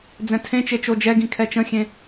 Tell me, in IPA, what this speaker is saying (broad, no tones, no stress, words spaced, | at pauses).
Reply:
d͡zɛ̃tʰẽt͡ʃe t͡ʃod͡ʒɛɡĩ kʰɛt͡ʃə̃xʲẽ